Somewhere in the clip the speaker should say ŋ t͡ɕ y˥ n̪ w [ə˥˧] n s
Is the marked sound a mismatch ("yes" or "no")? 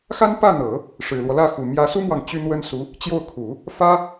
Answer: yes